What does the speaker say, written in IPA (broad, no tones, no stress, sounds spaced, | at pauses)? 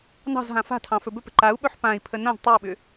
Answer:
n ɑ̤ z ɦ ã f a̤ tʰ ɑ̃ f ɵ b ɵ p ə̤ ǃ a u̯ ɓ ɵ ħ p ã i̯ pʰ ə n ã z tˤ ɯ u̯ ɓ ʏ